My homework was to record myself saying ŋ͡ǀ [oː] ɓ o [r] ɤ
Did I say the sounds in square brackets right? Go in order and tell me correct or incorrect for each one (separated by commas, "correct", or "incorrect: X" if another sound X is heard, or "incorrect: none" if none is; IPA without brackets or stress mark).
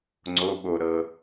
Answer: incorrect: o, incorrect: ɾ